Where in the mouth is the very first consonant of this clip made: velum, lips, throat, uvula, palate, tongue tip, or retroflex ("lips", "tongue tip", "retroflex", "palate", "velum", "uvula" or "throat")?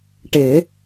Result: retroflex